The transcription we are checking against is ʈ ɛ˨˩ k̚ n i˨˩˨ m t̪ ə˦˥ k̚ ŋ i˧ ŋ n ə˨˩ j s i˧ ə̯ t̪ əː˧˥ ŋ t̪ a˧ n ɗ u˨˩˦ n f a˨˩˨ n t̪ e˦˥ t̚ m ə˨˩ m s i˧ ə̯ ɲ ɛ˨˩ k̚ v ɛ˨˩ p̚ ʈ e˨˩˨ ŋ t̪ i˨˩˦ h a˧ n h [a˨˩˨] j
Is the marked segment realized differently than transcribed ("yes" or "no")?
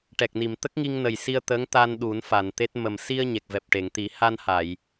no